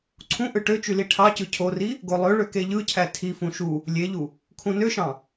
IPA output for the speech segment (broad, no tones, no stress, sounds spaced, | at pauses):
ǀʰ ũ ʔ ɯ ʈ ø t͡ʃ y l i ʈʰ ɑ c ɯ cʰ o r i | ɡ o lˠ ø ɭ ø k e ʎ ɯ cʰ æ tʰ i f ũ ʃ u | lʲ e ʎ u | kʰ ũ n ø ʃ ɑ̃